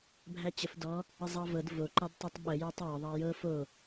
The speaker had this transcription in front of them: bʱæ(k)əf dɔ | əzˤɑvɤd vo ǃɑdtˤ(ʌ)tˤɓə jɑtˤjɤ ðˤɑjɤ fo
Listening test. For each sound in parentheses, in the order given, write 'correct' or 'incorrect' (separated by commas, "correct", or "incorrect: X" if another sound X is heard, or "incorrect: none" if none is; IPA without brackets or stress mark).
incorrect: t͡ɕ, incorrect: ɑ